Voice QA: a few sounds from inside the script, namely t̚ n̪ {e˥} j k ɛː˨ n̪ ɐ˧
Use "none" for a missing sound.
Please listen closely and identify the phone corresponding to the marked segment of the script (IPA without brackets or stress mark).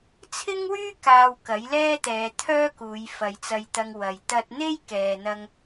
e˥